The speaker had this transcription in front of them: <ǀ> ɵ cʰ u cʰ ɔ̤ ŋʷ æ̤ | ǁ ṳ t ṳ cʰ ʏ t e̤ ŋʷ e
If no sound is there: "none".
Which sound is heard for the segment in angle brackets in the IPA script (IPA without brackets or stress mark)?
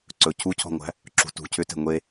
ǀ